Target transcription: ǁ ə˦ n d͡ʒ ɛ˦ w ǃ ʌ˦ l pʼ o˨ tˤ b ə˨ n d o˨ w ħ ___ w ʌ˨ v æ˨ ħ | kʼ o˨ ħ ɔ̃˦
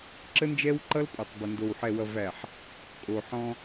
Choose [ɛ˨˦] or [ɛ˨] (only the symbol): ɛ˨